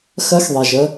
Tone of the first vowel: rising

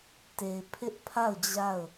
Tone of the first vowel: low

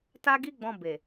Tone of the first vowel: high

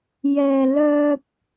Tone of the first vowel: low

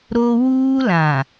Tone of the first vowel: high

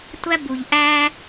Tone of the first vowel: high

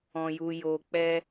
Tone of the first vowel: low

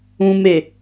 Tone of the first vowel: low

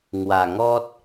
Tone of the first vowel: low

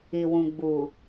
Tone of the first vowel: low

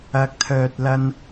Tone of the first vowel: rising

